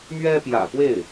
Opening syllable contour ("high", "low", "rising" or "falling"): high